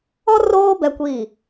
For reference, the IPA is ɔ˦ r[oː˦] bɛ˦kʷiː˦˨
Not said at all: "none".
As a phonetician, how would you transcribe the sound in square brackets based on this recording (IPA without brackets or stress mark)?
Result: oː˦